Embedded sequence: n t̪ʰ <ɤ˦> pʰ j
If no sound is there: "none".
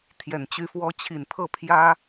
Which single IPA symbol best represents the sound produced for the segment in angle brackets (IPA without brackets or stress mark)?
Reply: ɤ˥˩